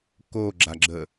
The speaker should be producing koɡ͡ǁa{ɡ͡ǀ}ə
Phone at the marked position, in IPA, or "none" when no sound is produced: ɡ͡ǁ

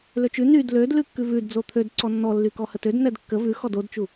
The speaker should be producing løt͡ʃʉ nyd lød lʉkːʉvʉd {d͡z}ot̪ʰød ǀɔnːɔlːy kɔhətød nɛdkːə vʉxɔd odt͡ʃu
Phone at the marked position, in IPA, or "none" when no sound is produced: d͡z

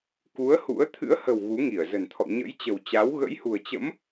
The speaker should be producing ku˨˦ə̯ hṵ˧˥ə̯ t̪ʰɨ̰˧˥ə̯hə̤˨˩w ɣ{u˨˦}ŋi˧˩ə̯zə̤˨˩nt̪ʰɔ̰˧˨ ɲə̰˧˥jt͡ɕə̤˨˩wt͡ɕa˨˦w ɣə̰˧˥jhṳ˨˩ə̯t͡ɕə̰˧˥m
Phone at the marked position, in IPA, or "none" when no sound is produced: u˨˦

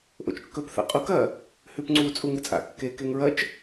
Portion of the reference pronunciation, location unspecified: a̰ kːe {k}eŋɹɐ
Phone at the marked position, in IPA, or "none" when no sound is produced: k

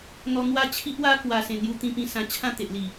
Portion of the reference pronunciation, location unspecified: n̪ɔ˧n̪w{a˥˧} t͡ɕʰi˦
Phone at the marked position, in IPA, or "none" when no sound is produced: a˥˧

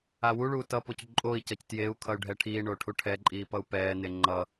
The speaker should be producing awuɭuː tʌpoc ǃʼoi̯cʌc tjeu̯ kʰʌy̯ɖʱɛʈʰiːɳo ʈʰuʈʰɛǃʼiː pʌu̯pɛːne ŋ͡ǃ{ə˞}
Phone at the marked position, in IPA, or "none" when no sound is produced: ʌ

